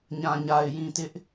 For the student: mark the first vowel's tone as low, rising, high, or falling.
low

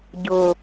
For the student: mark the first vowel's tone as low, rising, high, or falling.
low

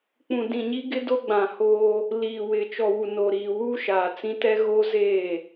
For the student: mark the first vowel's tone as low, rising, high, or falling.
low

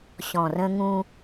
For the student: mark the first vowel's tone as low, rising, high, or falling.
low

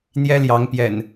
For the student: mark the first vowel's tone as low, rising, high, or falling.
high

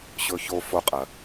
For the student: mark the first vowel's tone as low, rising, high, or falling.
high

